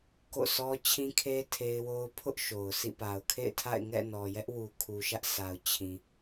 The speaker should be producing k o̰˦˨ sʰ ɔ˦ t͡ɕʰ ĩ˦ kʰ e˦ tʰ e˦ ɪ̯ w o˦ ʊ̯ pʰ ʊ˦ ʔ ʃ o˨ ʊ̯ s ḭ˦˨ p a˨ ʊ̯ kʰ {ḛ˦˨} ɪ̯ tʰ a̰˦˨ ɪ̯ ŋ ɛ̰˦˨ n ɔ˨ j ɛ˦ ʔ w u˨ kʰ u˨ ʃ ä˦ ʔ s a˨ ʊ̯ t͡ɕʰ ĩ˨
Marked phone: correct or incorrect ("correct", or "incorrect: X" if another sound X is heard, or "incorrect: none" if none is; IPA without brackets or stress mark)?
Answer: correct